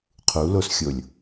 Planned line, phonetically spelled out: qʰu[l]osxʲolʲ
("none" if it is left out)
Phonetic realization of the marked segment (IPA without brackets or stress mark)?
l